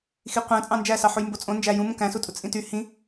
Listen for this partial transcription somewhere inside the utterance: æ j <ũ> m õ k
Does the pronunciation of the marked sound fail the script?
no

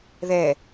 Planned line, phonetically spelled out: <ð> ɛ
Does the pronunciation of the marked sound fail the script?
no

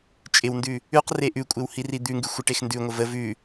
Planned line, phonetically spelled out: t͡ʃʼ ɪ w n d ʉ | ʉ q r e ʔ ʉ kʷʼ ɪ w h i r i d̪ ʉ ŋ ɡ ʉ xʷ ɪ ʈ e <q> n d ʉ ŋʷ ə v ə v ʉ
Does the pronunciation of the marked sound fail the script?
yes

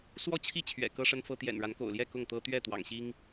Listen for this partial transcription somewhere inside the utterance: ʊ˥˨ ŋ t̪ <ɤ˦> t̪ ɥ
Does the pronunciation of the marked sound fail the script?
no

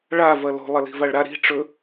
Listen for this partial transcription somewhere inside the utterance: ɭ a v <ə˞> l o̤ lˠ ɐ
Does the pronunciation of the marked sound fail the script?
yes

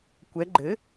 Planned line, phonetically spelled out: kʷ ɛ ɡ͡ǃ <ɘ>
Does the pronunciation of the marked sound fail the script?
no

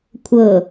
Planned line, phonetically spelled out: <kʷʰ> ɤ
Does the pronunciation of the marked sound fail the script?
no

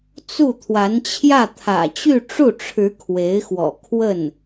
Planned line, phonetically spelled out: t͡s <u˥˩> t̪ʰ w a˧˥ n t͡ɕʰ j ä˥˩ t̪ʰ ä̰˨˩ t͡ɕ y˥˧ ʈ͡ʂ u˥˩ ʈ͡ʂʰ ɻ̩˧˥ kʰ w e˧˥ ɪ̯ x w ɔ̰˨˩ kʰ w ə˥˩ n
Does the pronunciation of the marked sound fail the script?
no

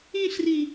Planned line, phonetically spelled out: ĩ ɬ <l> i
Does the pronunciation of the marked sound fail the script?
yes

